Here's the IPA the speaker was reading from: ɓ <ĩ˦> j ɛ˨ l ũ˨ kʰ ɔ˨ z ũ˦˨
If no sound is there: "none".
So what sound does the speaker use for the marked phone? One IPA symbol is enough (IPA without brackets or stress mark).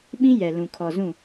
ĩ˦